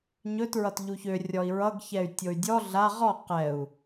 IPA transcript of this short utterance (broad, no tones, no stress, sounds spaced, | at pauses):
ɲ ɵ t ɹ ʌ t ʎ u ç ø rʲ ɔ i̯ ɹ ʌ ɡ ç ɛ y̯ tʲ o y̯ dʲ ɔ ɮ a ʁ ɔ q ɛ u̯